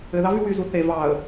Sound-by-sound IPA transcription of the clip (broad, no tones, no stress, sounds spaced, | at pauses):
ɘ ð ɑ v y w y z u θ e v ɑ ə̯